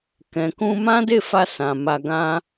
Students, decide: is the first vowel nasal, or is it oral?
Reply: nasal